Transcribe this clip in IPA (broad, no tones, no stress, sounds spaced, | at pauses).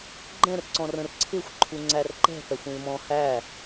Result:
ɡ͡ǃ ɛ̃ r ǀ ɔ̃ r ə̃ r ǀʰ ɪ xʷ ǃʰ u ŋ͡ǀ æ r ǃ ɛ̤ p ɛ xʷ ĩ l m ɔ̃ h æ